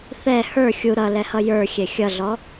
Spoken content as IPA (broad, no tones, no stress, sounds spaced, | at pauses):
θ ɛ h ə˞ xʲ u ɾ ʌ l ɛ h ʌ j ə˞ xʲ ɛ xʲ ʌ ɮ ɔ